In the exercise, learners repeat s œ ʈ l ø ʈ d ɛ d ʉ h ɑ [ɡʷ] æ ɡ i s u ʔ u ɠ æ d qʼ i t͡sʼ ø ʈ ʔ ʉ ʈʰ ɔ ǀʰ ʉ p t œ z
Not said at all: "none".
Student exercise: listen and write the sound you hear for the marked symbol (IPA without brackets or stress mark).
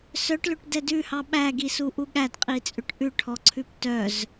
ɓ